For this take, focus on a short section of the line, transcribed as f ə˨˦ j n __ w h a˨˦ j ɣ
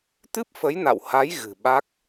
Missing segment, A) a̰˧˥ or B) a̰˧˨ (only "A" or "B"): B